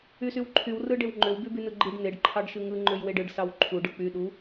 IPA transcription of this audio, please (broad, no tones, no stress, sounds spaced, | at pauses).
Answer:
y s y w ǃʰ y w r ɯ ɖ e w ŋ͡ǃ ø w b y b y n ɯ ɡ͡ǃ i ɖ n e ɖ ǃʰ ɑ ɖ ʃ ɯ ŋ ɯ ŋ͡ǃ ø j w e ɖ ɯ ɖ s ɑ w ǃʰ u ɖ ɯ k͡p y ɗ u